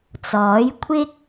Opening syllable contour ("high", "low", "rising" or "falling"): rising